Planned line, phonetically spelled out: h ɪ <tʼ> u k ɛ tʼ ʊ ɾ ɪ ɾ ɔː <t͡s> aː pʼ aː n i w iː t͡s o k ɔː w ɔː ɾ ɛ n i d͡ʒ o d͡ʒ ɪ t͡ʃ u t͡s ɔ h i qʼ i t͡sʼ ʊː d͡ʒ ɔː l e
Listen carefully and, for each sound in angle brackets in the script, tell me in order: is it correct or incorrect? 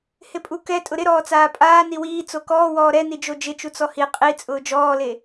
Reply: incorrect: pʼ, correct

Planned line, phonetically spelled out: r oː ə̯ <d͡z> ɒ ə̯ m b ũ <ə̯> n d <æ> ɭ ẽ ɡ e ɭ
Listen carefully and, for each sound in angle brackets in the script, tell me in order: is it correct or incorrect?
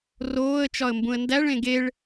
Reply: incorrect: t͡ʃ, correct, correct

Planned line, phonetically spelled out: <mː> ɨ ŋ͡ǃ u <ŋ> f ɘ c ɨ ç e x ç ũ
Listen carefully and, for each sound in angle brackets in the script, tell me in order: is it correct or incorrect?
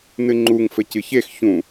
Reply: incorrect: n, correct

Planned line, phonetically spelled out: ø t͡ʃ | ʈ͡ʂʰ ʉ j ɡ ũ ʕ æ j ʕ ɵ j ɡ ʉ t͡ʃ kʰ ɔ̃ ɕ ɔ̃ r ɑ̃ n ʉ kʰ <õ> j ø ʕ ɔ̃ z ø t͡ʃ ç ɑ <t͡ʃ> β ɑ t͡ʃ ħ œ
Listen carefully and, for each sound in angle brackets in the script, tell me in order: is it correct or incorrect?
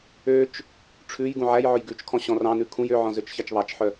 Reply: incorrect: ũ, correct

